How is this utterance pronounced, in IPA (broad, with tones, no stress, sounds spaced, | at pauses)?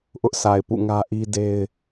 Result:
ʔ ʊ˦ ʔ sʰ a˨ ɪ̯ p ṵ˦˨ ŋ ä˦ ʔ i˦ d e˦ ɪ̯